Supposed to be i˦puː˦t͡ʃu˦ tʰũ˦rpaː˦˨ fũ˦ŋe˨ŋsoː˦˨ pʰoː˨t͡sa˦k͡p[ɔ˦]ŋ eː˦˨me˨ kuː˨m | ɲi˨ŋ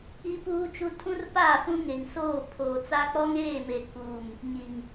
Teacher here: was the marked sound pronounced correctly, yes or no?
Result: yes